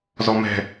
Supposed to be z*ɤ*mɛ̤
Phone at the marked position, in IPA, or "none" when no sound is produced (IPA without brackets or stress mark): ɔ